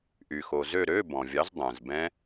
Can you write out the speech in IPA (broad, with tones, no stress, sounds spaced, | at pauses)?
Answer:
ʔ y˩ x o˩ z ø˦˨ ɾ ø˧˥˧ b ɔ̃˩ vʲ ɑ˨˥ z dˤ ɛ̃˩ z b ɛ̃˦˥